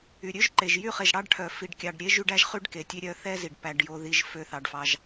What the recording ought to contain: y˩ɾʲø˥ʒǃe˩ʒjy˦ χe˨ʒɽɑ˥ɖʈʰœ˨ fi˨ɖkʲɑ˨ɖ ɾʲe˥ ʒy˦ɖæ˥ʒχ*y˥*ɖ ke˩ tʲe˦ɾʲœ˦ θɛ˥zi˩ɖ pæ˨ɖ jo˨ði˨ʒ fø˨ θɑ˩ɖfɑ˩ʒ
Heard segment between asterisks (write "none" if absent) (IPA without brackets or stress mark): y˥